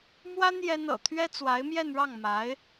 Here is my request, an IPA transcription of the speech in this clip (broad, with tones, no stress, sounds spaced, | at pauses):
m w a˥ n j ɛ˥ n ɤ̰˨˩ t̪ʰ ɥ ɛ˥ t͡s w a˧˥ ɪ̯ m j ɛ˥˧ n ɻ ɑ˥˩ ŋ m a˧˥ ɪ̯